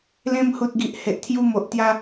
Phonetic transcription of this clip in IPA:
l ẽ˧ m h u˨ t̚ ɡ i˨ ʔ h e˨ ʔ t̪ʰ j u˧ m o˨ ʔ t̪ j a˧

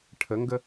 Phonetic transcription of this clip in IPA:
ʈʰ ə ŋ ɡ ə

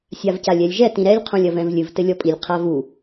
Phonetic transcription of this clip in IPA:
sʲ a v c a lʲ ɛ lʲ ʒ ɛ t ĩ ɾ ɛ lʲ qʰ õ lʲ ɐ v ɛ̃ v lʲ ɨ v t ɘ lʲ ɔ pʼ i lʲ qʰ a v u

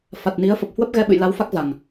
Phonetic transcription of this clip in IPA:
f a˨˩ t̚ n i˨˦ ə̯ f ə˨˩ p̚ h w ə˦˥ p̚ ɣ ɛ˧ ɓ ɨ̰˧˨ j l a˨˦ w f a˦˥ k̚ z a˨˩ ŋ

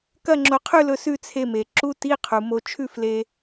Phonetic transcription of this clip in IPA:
k ɐ˥˧ ŋ͡ǁ o˧ qʰ ʉ˥˧ l ɵ˧ s ʉ˥˧ t͡sʰ e˧ m e˩ ǁ u˧˥˧ t i˧˥˧ qʰ u˩ m o˧ t͡ʃʰ ʉ˥˧ f l e˧

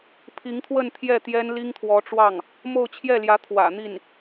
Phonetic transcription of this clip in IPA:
pʰ i˧˥ ŋ t̪ʰ w ə˥˧ n t̪ʰ j ɛ˥˩ t̪ j ɛ˥ n l i˥ ŋ t̪ʰ w ɔ˧˥ ʈ͡ʂ w ɑ˥˩ ŋ | m o˥˧ ʊ̯ t͡ɕʰ j ɛ˥˩ l j ä˧˥ t̪ʰ w ä̰˨˩ n̪ i˥˩ n

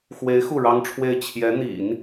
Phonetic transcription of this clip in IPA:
x w e˧˥ ɪ̯ x u˥˩ ɻ ɑ˥ ŋ ʈ͡ʂʰ w e˥˩ ɪ̯ t͡ɕʰ j ɛ˧˥ n̪ ḭ˨˩˦ n

